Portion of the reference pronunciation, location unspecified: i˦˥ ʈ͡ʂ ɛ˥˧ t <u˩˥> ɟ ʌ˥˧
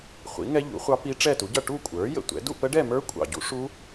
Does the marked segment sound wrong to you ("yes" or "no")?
no